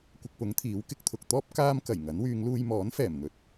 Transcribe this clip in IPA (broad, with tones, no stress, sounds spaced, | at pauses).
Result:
kʷ ɪ˧ k̚ p ʊ˨˥ ŋ t̪ʰ iː˨˥ w k ɪ˧ k̚ t̪ʰ ʊ˨ k̚ t̪ ɔː˥ p̚ k aː˥ m k ɐ˨˩ j ŋ ɐ˨˥ n w yː˨˧ ŋ l uː˧ j m ɔː˨˥ n f ɛː˨˩ m n̪ ɵ˨ t̚